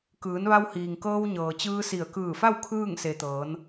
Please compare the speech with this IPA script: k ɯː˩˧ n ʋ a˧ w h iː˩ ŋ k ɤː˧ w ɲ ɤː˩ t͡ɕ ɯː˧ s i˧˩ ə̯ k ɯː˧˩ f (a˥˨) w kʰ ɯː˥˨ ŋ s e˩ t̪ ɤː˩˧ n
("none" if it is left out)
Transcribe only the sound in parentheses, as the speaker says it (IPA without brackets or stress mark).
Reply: a˥˨